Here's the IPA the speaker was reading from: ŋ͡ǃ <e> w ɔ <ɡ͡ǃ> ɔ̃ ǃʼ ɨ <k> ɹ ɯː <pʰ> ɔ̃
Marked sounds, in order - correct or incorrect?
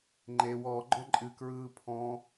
correct, correct, correct, correct

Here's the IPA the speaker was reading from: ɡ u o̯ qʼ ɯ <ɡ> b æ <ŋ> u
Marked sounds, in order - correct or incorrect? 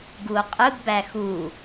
correct, incorrect: x

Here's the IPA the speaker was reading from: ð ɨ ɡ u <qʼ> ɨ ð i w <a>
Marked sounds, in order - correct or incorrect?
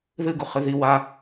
incorrect: χ, correct

